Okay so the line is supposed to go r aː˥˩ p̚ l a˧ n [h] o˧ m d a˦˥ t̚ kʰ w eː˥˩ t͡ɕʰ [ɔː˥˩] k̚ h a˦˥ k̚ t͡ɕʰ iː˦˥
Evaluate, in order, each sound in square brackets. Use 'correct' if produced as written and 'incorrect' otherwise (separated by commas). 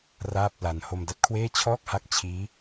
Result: correct, correct